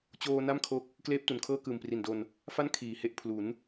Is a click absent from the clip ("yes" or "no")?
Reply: yes